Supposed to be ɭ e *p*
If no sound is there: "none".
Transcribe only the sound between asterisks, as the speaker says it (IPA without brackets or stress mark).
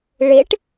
ʈ